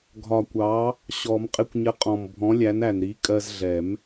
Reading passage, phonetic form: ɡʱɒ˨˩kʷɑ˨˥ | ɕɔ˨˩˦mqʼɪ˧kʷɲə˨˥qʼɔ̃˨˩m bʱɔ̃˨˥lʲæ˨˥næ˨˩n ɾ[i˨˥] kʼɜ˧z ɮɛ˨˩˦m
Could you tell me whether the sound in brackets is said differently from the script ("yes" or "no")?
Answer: no